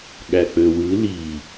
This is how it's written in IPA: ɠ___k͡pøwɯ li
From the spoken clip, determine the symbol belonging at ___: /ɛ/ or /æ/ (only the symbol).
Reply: æ